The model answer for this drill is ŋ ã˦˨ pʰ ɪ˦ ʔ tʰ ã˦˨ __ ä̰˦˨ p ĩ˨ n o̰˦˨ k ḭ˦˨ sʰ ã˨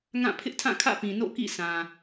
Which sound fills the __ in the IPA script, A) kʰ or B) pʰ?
A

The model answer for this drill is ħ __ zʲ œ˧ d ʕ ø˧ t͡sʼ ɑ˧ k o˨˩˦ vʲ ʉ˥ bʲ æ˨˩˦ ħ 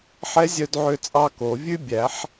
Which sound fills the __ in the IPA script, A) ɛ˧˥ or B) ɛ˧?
A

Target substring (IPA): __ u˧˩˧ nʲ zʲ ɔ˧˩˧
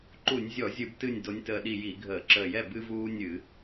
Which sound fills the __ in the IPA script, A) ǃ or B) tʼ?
A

